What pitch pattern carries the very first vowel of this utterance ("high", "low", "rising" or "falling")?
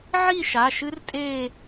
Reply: falling